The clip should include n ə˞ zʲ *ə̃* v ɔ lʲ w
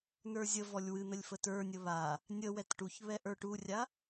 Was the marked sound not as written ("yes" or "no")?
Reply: yes